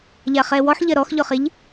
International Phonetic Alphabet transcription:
ʎ a χ ɛ w ɔ ħ ʎ ɐ ɾ ɔ x ʎ ɔ χ e ʎ

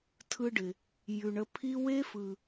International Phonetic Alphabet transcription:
tʰ ɯ˧ ɖ ɪ˨ | j ʉ˨ ɳ ə˧ pʰ i˦ w e˦ f ɯ˨

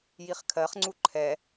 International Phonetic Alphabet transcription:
j i χ kʰ ɜ χ ŋ͡ǀ u ǃʰ ɛ

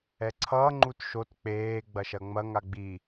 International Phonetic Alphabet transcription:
ɛ ǀʰ ʌː ŋ͡ǃ u t ʃ o t k͡p eː ɡ͡b ɐ ʃ ɐ ŋ͡m ɐ ŋ a ɡ͡b i

